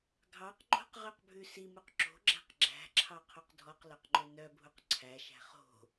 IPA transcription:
ɡʱ ɑ q ŋ͡ǃ o̤ q ʁ ø q bʱ ʉ s i m u q ǁ o̤ ɡ͡ǁ æ̤ q ɡ͡ǁ æ̤ ǁʰ ɑ qʰ o q dʱ ɔ q l œ q ŋ͡ǃ ø n œ bʱ u q ǀʰ æ ʃ æ̤ χ o̤

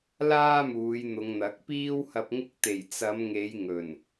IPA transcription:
l aː˥ m uː˨˧ j n̪ ʊ˨˧ ŋ n̪ ɐ˨˥ k̚ p iː˥ w h ɐ˧ p̚ ŋ ɪ˧ k̚ t̪ e˨˩ j t͡s ɐ˨˧ m ŋ e˨˧ j ŋ ɵ˨˩ n

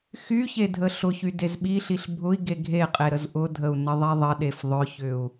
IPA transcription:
x y ç e dʱ ə ɬ ʊ ç y d e z ɓ i ɬ i ɬ bʱ ʊ i̯ ɡ e ɡʱ e qʼ e ɾ ə z ʔ ʊ dʱ ə u̯ n ə ðˤ i ðˤ ə ɗ e f ðˤ ʊ ç ʏ u̯

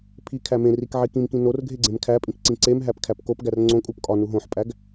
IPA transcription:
pʰ i kʰ æ m ẽ r i k ʕ i k ĩ m k ĩ n o r ɡʱ e ɡ͡ǀ ẽ m kʰ æ pʼ ĩ k ǀ ĩ ǀ e m ɦ æ p kʰ æ p k o p ɡ æ r ŋ͡ǀ õ kʼ u p kʼ ɒ n u ɦ õ ħ pʼ æ ɡ

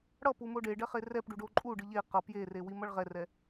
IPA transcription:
ɽ ʌ p u m o ɖ e ɖ ɛ χ e r ɛ p ɖ u ɖ o ǃʼ u ɖ ɯ ʎ e q ʌ p j e r e w i m ʌ ɭ ʁ ɛ r ɛ

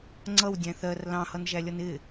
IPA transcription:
ŋ͡ǀ ʌ w dʲ æ̃ θ ɜ r l ɑ̃ h ʌ n ʒ æ lʲ ʌ n ɪ

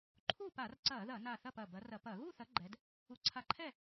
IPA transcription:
ǃʰ u˥˨ p a˧˩˧ r ǀ ɐː˧˩˧ ð ɐ˧˩˧ n a˧˩ θ ɐ˥˨ p ɐ˧˩ b ɐ˨˦ r ɐ˧˩˧ p ɐ˧˩˧ ɣ u˥˨ θ ɐ˨˦ ɡ͡ǃ ɛ˨˦ d | u˨˦ ǀʰ a˧˩ ǃʰ ɛ˥˨

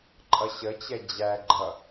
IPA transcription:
ǃʼ ʌ ɕ ə t͡ɕ ɛ d͡ʑ æ ɡ͡ǃ ʌ

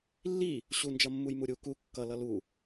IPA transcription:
lː i | ɕ u n d͡ʒ ʌ mː u j m u ɾʲ u k u kː ʌ l ʌ l u

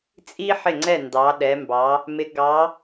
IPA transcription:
t͡sʼ i˥ ħ ɪ˥˩ ŋ͡ǀ ɛ˥˩ n d ɑ˨˦ ɗ ɛ˨˦ m b ɑ˨˦ | m ɪ˨˦ ɡ ɑ˨˦

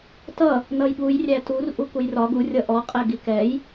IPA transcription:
t ʌ | n ʌ j ɠ u j rʲ æ t u r ʔ u k u j r ɒ ɡ u rʲ ʌ ʔ ɔ qʼ ɛ ɡ i k ɛ j

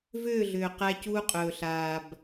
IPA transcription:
v ʏː˦˨ ɮ ʏː˨ q æ˦ c uː˦ qʼ ɵː˨ ɬ aː˨ b

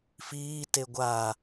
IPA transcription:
f iː t e ɡʷ aː

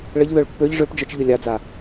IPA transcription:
ɭ ə ʎ ð œ ɭ pː ø ʎ ʐ ø p d͡ʒ œ t͡ʃ ʎ ø lʲ a d͡z a

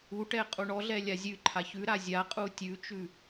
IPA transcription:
u ʈ ɛ qʼ u ɳ ɔ ɮ ɛ lʲ a zʲ ʉ ǃʰ a ç ʉ ɾ a zʲ a qʼ u tʲ ʉ t͡ʃ ʉ

